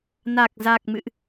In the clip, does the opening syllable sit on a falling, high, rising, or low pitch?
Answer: low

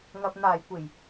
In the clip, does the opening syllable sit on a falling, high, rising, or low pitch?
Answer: low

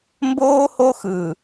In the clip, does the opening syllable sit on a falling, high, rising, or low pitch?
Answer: high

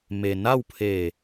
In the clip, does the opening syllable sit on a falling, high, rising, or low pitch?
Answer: low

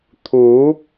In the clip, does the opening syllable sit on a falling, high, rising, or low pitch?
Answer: rising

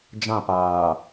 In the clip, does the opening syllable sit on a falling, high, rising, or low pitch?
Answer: falling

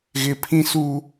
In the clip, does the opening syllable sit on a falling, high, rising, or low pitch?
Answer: high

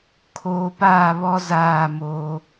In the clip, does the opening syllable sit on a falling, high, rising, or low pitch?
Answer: low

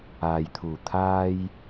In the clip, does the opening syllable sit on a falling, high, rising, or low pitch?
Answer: low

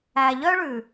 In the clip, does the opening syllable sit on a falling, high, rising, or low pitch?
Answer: low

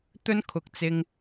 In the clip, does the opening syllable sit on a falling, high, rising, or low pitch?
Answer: high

